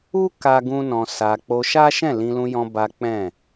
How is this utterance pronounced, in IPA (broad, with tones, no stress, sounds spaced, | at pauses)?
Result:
u˦ k a˦ ɡ ũ˦ n ɔ̃˧ s a˧ k͡p o˧ ʃ a˦ ʃ ɛ̃˦˨ l ĩ˧ l ũ˧ j ɔ̃˧ b a˦ k͡p ɛ̃˦˨